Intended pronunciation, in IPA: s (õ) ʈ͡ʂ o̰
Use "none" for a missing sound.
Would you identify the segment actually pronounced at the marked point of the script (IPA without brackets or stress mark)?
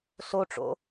o